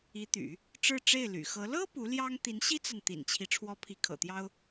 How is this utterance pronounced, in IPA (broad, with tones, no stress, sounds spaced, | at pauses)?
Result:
i˧˥ t̪ y̰˨˩˦ | ʈ͡ʂ ɻ̩˥˧ ʈ͡ʂ e˥˩ ɪ̯ l y̰˨˩ x ɤ˧˥ l ɤ˥ p u˧˥ l j ɑ˥ ŋ t̪ i˧˥ n ɕ i˥ t͡s a˨ n t̪ ḭ˨˩ n t͡ɕʰ i˦ ʈ͡ʂʰ w ɔ˧˥ pʰ i˧˥ kʰ ɤ̰˨˩ t̪ j ɑ˥ ʊ̯